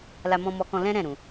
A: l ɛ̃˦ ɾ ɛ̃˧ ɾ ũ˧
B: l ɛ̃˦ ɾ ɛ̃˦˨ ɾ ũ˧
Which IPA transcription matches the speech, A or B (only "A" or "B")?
B